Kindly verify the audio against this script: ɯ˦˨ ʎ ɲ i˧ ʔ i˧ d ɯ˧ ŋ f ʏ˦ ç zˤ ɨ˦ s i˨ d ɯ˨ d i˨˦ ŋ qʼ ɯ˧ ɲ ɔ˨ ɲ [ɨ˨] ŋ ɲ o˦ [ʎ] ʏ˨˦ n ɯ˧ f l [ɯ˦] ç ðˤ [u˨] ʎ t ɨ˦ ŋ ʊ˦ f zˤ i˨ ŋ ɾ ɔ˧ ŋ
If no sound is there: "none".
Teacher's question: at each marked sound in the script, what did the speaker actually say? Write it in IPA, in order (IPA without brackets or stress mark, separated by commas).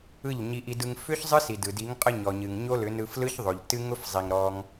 ɨ˨, l, ɯ˦, o˨